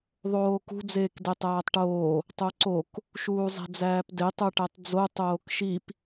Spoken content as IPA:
ðˤ oː k ṳ d͡z eː k d e tˤ æː tˤ ʈ oː | tˤ o ǀ o k | ʃ uː zˤ e̤ d͡z æː p d e tˤ u ʈ æ tˤ d͡z o tˤ oː k ʃ i p

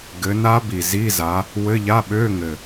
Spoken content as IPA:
ɡ ɘ˨˦ n a˦˥ b i˨˩ z i˧˥˧ z a˨˦ | w ɘ˧˥˧ ʎ a˧˥˧ ɓ ø˧˥˧ ŋ ɘ˨˩

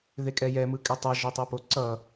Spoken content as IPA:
ð e kʼ ɛ j ɛ m ɯ kʼ ɛ tˤ a ʒ o tˤ o p o ǀ ʌ

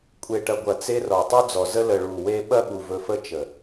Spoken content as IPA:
kʷʼ e˨ ʈ ɐ˨ ɡʷ ɐ˨ t͡s e˧ r ɔ˨ tˤ u˦ d͡z ɔ˨ z ə˦ l ə˨ ɭ u˨ w e˧ ɓ ɐ˦ ɓ u˨ v ɵ˧ f ə˦ t͡ʃ ə˨

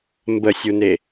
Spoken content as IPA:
m b ə sʲ u n e

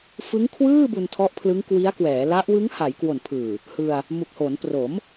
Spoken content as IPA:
f ɯ˦˥ ŋ kʰ w ɯː˥˩ b u˧ n tʰ ɔ˦˥ ʔ pʰ l ɯ˦˥ ŋ k w i˦˥ a̯ k w ɛː˩˦ l a˦˥ ʔ w ɯ˦˥ ŋ h a˩˦ j k w o˨˩ n pʰ ɯː˨˩ | h ɯ˧ a̯ | m u˨˩ k̚ h o˩˦ n p r o˩˦ m

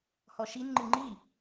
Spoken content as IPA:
h ɔ ʃ i n ŋ͡ǃ ɨ ŋ͡ǃ i

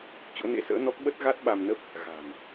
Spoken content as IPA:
t͡ɕ o̰˧˥ n ḛ˧˥ s ə̰ː˧˥ n ɔ˦˥ k̚ ɓ ə˦˥ t̚ ɣ a˦˥ t̚ ɓ a˧ m n ə˦˥ p̚ | ɣ a̤˨˩ n

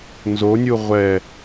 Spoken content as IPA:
n z o nʲ u ʁʷ ɛ

